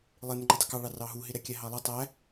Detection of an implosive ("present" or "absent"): absent